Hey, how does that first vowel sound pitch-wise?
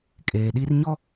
low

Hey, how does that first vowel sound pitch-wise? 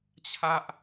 high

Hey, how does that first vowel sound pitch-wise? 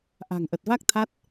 low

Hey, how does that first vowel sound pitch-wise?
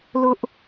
high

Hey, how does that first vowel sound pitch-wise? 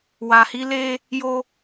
low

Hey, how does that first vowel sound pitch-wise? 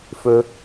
low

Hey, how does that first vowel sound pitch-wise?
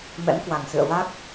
rising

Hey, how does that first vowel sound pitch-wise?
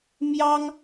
high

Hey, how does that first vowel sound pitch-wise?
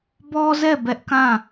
high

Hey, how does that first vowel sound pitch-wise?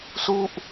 falling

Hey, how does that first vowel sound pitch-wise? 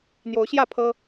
rising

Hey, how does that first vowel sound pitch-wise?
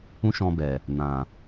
high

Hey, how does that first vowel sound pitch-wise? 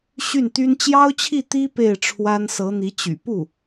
falling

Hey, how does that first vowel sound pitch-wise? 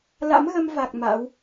rising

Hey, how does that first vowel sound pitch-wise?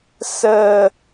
low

